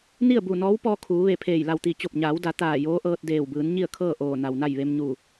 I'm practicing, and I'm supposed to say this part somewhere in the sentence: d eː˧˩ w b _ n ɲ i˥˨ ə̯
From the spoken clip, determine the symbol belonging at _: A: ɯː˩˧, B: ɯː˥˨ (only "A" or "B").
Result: A